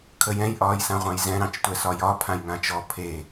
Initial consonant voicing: voiceless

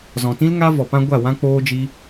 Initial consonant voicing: voiced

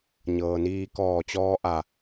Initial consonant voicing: voiced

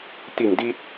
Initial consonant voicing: voiceless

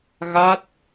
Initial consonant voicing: voiced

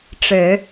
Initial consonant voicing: voiceless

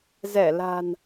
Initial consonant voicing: voiced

